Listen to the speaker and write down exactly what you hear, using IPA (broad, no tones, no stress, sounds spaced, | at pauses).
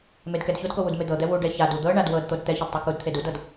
m e d k ɛ d ç o d k o w u d m e d̪ ɤ d̪ ɛ w u ɖ ɛ ç a d u d̪ ɤ ɳ a d w ɤ d t̪ o d t̪ ɛ ç ɛ d tˤ ɛ k u d t̪ʰ e d u d ɤ d